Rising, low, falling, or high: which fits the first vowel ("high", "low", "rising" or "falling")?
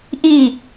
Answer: falling